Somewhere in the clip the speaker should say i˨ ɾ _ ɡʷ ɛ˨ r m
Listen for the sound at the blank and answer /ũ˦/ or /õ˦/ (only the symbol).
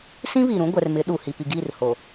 ũ˦